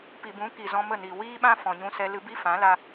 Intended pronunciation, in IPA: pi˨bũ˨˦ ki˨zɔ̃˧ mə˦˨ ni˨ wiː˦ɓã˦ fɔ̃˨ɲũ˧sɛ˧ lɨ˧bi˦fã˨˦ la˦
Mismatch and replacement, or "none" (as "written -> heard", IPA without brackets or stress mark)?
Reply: none